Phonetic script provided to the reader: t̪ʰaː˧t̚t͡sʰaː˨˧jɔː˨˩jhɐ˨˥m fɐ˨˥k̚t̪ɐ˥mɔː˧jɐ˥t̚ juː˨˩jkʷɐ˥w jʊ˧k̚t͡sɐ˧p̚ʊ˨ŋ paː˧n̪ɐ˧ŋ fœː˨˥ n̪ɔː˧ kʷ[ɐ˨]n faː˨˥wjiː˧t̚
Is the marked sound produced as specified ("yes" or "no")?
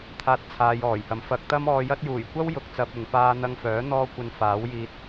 yes